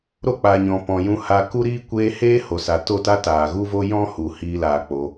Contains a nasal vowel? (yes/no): yes